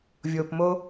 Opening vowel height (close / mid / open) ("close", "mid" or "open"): mid